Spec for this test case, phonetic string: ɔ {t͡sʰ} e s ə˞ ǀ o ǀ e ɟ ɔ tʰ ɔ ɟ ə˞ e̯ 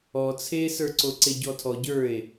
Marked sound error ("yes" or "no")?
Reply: no